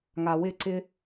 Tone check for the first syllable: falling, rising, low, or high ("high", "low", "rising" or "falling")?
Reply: low